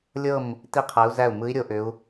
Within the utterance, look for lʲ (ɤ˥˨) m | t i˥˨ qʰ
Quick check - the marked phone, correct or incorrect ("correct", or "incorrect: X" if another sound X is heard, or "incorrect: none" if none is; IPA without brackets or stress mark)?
correct